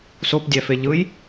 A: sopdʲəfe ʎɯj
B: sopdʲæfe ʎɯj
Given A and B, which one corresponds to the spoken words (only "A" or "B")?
B